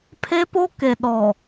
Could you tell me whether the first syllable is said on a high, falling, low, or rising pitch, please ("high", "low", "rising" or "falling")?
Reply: high